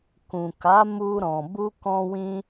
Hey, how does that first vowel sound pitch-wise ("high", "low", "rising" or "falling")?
low